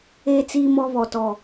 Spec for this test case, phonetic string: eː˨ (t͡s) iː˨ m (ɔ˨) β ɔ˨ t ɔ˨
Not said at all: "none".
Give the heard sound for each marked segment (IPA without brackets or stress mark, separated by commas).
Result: t͡s, ɔ˨